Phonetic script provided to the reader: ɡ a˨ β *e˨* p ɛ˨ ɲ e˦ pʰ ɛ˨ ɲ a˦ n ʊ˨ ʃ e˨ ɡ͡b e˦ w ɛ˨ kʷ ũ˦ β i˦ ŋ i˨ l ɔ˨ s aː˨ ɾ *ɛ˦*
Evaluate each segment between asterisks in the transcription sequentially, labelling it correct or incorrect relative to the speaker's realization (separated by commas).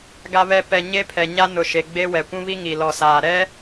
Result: incorrect, correct